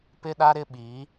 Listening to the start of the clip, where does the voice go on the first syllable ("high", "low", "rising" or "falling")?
high